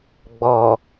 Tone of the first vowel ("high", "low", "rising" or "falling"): low